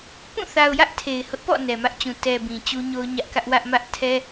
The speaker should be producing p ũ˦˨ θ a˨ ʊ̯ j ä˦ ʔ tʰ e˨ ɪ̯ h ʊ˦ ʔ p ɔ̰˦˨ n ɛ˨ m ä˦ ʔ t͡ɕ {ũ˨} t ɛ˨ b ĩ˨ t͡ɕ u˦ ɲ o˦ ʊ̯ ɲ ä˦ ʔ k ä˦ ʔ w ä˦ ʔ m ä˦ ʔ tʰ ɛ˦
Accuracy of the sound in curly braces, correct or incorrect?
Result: correct